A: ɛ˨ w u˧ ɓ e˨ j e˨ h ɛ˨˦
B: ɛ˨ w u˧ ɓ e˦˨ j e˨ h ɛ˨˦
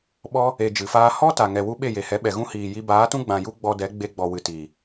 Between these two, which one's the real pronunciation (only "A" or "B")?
B